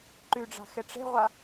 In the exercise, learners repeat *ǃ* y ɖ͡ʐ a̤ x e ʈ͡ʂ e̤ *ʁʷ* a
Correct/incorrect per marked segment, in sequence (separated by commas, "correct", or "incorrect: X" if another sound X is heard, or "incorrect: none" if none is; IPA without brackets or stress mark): correct, correct